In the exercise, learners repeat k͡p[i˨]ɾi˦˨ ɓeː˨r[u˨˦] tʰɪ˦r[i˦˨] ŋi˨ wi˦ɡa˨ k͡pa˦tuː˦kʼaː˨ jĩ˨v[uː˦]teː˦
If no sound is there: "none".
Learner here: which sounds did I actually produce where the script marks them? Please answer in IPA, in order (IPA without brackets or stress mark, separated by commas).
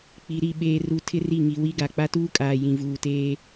i˨, u˨, i˦˨, uː˨